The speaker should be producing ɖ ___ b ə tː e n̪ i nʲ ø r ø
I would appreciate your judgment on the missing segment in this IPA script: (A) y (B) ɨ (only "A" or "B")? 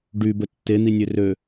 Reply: A